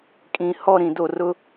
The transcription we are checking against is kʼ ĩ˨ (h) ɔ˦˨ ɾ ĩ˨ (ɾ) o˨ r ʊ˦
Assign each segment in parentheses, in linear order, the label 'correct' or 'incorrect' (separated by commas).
correct, incorrect